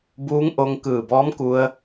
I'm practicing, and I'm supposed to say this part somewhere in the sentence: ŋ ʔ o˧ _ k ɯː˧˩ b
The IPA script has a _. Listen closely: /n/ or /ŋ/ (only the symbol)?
ŋ